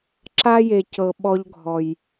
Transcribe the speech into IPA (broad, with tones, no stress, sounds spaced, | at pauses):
ǁ a˦ j e˨ c ɤ˨ ɓ ɔ˦ ʎ ɡʱ ɔ˨ j